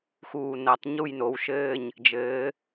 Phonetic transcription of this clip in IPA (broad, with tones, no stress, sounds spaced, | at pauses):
x uː˧˩ n ɐ˨˩˦ tˤ ɲ u˥˨ j n o˩˧˩ w ʃ ɘː˥˨ ɲ | d͡ʒ ɘː˨˥